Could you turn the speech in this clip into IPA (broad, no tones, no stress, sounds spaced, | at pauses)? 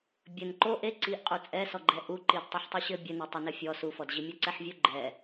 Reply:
bʲ ɘ n ǃ o ʔ e ǀ i ʔ qʼ u t͡sʼ ɛ s ɔ ɡ͡ǃ ɛ ʔ u ǃ i d tˤ e ħ tˤ i ɕ ɘ bʲ ɘ n e tˤ ɘ n ɘ fʲ ɔ s u f ɔ d ʑ i mʲ ɐ ǀ ɛ ħ vʲ u ɡ͡ǃ ɛ